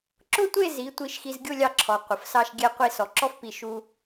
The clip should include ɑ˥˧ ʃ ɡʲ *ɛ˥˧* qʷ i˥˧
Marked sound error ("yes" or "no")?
no